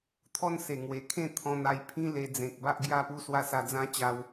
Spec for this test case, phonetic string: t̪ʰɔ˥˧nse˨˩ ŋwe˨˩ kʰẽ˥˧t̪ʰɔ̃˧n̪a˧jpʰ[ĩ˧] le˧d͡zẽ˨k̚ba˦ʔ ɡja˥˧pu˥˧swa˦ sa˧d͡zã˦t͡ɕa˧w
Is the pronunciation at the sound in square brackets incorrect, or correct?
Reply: incorrect